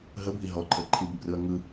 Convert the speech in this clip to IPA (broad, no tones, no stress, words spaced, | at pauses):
ɦəbʱi ɦɔǃʰə ǃʰibɘbrɯɐ̯ ŋɯ